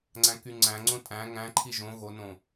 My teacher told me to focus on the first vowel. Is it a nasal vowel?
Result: yes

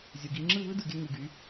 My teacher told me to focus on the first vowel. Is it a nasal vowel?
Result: no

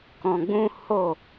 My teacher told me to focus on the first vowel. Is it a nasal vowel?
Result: yes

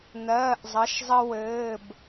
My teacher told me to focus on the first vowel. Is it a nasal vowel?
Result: no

